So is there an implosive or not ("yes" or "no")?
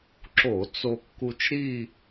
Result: no